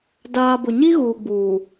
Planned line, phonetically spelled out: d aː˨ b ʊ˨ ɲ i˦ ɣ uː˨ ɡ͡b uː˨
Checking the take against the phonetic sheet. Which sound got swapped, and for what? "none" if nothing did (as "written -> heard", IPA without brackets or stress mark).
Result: none